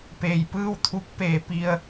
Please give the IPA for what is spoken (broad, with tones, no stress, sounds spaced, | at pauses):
p eː˩ j p ɯː˥˨ w t̪ʰ u˧˥ k̚ p eː˩˧ p i˩ ə̯